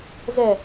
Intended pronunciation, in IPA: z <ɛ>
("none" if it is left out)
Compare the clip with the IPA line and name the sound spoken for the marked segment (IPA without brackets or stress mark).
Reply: ɛ